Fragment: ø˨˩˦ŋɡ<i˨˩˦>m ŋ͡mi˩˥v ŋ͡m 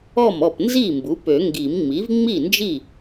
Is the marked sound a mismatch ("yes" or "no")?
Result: no